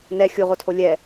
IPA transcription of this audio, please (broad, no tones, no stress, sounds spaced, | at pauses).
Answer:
n ɛ xʲ u ʁ o tʰ o lʲ ɛ